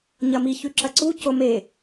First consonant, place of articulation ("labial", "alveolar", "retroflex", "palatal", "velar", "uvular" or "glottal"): palatal